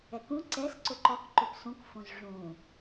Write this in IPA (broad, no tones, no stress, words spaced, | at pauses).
ɛkũ ǀɛs ǀɵǃɔk ǃɵpsũk fõzʐũ